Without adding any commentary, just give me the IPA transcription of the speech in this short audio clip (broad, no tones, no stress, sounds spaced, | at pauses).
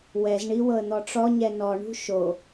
w ɛ z ɳ i w ɤ ə̯ n̪ ɔ ʈ͡ʂ ɔ ɲ ɛ n ɔ ɳ ṳ ʃ o